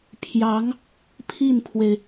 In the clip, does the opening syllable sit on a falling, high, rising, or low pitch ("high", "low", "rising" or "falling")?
rising